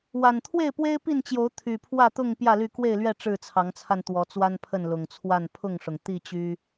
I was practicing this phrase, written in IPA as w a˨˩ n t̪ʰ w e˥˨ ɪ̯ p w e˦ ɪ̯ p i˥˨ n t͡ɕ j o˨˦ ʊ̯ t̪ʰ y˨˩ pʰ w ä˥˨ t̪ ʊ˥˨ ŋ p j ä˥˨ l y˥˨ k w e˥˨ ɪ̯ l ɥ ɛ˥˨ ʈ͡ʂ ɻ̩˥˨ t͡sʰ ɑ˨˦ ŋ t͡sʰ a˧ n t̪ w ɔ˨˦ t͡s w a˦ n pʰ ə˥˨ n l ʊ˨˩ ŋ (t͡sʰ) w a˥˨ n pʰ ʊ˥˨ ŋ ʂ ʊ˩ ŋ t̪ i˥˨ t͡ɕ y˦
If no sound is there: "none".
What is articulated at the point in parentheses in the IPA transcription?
t͡sʰ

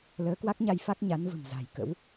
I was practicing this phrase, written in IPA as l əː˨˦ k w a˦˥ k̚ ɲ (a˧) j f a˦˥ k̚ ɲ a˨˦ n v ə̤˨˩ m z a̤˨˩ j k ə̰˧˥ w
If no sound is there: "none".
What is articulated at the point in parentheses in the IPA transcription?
a˧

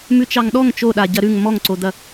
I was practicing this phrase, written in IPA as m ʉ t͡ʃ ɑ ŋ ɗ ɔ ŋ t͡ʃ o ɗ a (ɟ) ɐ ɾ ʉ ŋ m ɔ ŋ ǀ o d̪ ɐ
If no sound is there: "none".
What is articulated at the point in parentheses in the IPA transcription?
ɟ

